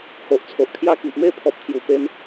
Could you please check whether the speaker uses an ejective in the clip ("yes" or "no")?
no